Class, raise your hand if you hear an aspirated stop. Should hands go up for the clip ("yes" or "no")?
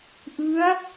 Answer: no